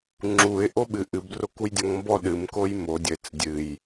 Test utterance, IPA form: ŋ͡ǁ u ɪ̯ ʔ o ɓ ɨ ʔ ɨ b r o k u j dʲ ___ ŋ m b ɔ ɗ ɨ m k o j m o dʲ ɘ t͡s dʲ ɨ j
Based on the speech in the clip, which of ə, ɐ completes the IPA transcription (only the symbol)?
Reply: ɐ